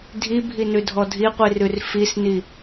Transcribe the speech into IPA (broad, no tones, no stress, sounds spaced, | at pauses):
dʱ i bʱ i n ʉ dʱ ɔ dʱ i qʷ i r ʉ r f i s n i